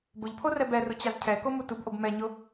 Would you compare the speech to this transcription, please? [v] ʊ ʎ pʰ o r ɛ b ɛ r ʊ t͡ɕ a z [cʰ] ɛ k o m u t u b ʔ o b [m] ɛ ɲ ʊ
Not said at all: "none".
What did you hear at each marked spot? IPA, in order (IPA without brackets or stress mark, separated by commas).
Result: b, cʰ, m